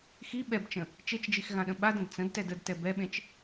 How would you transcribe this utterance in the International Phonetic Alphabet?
x i ɓ ɛ b t͡ʃ ə̃ | t͡ʃ e t͡ʃ d͡ʒ i x ɣ ã ɗ ə̃ ɓ a d ə̃ d t͡s ə̃ d t ɛ d ə d t ɛ b ɛ ɓ ẽ t͡ʃ

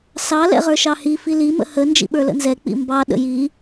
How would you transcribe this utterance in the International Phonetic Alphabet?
s ɑ l ɛ̰ ʁ ə˞ ʃ ɑ h i f i l i m ə̰ h ə n d͡ʒ ḭ ɓ ə˞ l ə̰ n z ɛ k͡p ḭ m b ɑ ɗ ə̰ j i

